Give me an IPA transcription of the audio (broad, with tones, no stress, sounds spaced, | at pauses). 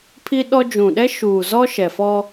pʰ i˦ ɗ ɔ˦ d͡ʒ ũ˨ ɗ ɛ˦ ʃ uː˨ z ɔ˦ ʃ ɛ˨ f ɔ˦